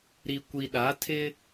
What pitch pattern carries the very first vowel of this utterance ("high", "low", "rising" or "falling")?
low